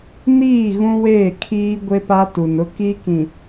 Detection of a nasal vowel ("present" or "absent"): present